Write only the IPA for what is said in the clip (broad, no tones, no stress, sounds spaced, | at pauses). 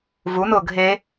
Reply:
v u n ʊː ɡʱ e